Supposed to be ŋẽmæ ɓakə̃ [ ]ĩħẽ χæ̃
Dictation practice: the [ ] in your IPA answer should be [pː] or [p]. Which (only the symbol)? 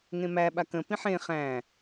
p